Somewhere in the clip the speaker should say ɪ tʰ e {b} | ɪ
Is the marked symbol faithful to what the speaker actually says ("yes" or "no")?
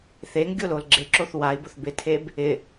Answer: yes